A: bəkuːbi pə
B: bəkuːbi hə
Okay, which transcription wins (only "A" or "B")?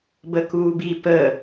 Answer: A